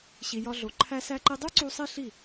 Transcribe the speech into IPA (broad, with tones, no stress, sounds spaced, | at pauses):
ɕ i˨ j ɒ˧ ɮ o˨ ǃʰ æ˧ s æ˧ ǃ i˧ dˤ u˦ ǀ u˧ sˤ i˦ ɬ i˦˨